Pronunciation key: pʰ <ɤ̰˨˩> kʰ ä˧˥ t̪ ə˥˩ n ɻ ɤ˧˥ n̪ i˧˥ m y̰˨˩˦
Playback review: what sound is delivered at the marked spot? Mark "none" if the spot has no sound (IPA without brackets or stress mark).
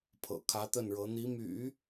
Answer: ɤ̰˨˩